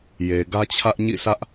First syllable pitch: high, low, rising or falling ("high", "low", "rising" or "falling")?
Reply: low